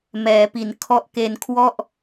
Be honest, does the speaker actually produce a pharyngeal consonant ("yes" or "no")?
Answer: no